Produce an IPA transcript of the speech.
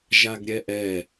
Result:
ʒaɡɾʲɛʔɛ

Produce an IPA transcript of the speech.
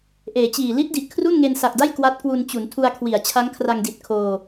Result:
ʔeː˩˦t͡ɕiː˨˩ li˦˥t̚di˨˩ʔ kʰru˥˩nŋe˧nsa˨˩k̚da˥˩j kwa˦˥t̚kwu˧n t͡ɕu˩˦ntʰu˧a̯kʰwi˩˦a̯ t͡ɕʰa˦˥ŋkʰra˧ŋdi˨˩t̚ kʰoː˧

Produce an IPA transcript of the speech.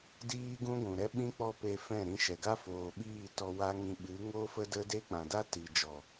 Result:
diː˦ɡũ˦ɡʷũ˨ ɾɛ˦ɓĩ˦ k͡pɔ˦pe˧fɛ̃˦˨ɾĩ˧ ʃɛ˨ɡa˦ foː˨ɓiː˦˨tɔ˧ wa˦ŋĩ˧ ɓɨ˨˦ŋo˦fə˦ də˦de˦ k͡pã˨da˦ ti˨ d͡ʒɔ˨

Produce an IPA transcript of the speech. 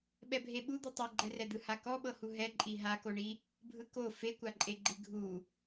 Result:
ɓɛbʱeɓud̪u tˤiɡ͡ǃɛrɛd̪ɯ hakɔɓɤhu ɦɛǃʼi ɦakoɳi | bʱɯko fekʷaǃʼeɡ͡ǃi ɡʱu

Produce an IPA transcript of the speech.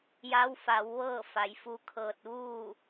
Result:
ja˧˥wfa˩˧w ʋɤː˥˨fa˩˧jfu˧kʰɤː˧t̚ ʋuː˥˨

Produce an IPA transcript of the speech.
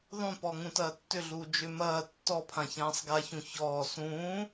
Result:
ðˤũpɔ ŋũtɐːtːʏɮuː d͡ʒʏ mɐː tːɔpʰã çãːsˤɡaçũ çɔː sũː

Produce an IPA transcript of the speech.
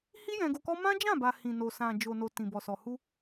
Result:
hi˦ jɛ̃˧ɡo˧kɔ˦ mã˦d͡ʒã˦˨ba˨ hĩ˨no˨ sã˨ d͡ʒo˨no˨ tĩ˨bɔ˨sɔ˨ hu˧

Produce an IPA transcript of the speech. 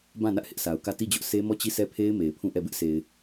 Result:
bã˦˨nä˦ʔ hɪ˦ʔsʰa˨ʊ̯kä˦˨ ti˦˨d͡ʑʊ˦ʔ sʰe˦mɔ˦˨t͡ɕi˦˨ sʰɛ˦˨pʰe˦ɪ̯ me˨ɪ̯pʰũ˦˨ʔɛ˦˨ bɪ˦ʔse˨ɪ̯

